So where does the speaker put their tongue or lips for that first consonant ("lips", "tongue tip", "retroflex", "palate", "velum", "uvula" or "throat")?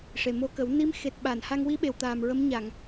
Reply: retroflex